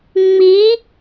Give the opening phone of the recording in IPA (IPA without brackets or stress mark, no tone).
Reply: ŋ͡m